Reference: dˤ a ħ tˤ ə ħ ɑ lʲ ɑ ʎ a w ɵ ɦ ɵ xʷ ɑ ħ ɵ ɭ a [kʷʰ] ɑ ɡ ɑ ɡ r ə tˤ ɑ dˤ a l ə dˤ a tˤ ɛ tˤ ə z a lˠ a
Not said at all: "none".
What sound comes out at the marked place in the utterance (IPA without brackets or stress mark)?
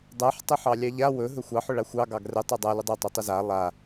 xʷ